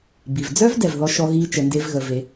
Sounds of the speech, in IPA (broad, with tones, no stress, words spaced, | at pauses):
bi˩vd͡zœ˥v dɛ˩vðɔ˧˥ʃɔ˧˥ɣi˧˥ t͡ʃə˩˧nde˧˥vɣə˩˧ ve˩˧